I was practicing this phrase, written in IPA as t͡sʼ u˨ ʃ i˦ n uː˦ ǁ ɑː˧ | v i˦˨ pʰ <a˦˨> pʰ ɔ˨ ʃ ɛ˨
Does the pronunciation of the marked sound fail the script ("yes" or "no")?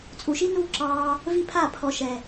no